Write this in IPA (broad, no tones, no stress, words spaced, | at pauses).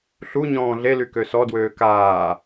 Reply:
ɬu ɲɔ̃ːɮely køsɔdwøː kaː